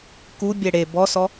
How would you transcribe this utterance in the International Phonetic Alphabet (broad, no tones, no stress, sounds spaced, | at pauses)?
k u bʲ ɛ ɽ e b ɔ s ɔ